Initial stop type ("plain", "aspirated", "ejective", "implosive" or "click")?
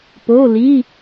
plain